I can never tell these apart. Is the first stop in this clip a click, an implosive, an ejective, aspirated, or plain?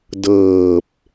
plain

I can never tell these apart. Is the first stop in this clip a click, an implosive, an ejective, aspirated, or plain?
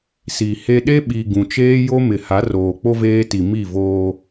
implosive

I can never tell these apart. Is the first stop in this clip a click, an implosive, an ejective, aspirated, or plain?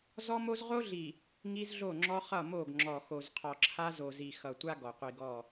click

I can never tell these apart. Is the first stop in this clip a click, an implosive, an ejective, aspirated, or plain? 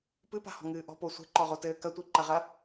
plain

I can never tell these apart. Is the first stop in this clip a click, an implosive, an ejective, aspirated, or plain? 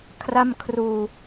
aspirated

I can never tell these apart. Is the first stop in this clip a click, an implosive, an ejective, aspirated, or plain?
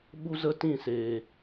implosive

